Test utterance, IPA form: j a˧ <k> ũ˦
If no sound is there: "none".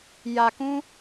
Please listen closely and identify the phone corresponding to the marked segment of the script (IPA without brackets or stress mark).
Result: k